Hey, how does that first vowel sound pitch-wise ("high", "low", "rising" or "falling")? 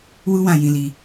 high